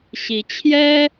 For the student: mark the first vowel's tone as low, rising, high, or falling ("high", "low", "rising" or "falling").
rising